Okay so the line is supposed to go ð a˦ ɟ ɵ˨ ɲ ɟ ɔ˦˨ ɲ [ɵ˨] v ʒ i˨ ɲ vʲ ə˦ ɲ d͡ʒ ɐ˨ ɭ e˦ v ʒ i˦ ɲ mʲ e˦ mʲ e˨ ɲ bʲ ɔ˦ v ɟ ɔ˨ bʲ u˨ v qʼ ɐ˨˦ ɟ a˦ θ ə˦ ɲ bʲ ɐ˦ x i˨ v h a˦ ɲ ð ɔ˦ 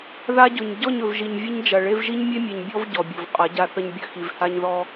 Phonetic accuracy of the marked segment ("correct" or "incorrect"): correct